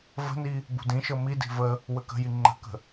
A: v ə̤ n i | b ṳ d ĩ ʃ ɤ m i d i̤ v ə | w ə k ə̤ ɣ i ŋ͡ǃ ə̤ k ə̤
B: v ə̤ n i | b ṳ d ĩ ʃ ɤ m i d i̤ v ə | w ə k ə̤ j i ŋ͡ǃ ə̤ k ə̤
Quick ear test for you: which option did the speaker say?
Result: B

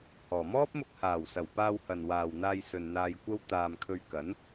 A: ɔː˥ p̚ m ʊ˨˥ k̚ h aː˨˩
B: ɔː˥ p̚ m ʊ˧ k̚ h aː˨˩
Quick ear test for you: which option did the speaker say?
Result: B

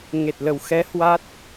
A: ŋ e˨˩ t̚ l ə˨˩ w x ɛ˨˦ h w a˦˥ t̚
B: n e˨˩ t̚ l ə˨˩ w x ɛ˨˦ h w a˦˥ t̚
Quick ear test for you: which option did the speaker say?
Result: A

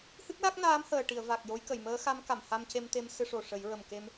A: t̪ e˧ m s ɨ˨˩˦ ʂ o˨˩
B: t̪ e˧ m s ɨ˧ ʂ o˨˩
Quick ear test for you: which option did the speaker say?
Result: B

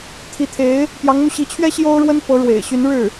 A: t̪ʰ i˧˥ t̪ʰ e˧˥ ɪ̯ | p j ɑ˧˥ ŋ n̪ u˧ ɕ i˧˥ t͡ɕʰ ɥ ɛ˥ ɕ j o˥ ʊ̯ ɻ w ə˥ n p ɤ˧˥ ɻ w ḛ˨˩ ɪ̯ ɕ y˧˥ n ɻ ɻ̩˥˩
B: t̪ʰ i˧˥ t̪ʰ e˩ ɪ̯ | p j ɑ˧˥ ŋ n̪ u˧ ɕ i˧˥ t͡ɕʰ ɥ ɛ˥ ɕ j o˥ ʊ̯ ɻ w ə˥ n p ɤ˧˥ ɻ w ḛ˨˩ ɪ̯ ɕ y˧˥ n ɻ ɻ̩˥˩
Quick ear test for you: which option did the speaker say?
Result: A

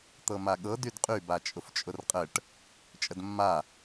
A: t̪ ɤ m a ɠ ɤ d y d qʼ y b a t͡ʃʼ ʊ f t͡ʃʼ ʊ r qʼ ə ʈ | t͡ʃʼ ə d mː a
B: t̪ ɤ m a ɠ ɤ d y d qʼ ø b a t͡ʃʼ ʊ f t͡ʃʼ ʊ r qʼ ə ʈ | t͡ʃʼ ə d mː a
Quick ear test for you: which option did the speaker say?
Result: A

